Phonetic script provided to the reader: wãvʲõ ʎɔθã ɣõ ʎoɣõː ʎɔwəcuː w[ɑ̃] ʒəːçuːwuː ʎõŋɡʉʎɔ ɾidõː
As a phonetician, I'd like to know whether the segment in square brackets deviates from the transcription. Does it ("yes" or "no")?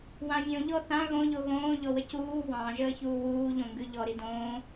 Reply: no